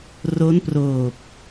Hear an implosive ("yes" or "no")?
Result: no